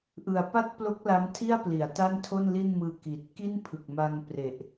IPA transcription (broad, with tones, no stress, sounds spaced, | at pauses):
ʔ ɯ˨˩ a̯ p a˥˩ t̚ p l o˦˥ k̚ l a˦˥ m tʰ i˥˩ a̯ p l i˩˦ a̯ t a˥˩ n tʰ o˥˩ n l i˥˩ n m ɯː˧ k i˨˩ t̚ k i˥˩ n pʰ ɯ˨˩ k̚ m a˧ ŋ p r e˨˩ ʔ